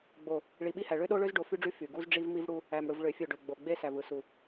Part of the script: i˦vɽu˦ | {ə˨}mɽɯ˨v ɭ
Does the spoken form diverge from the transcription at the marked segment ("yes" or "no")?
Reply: yes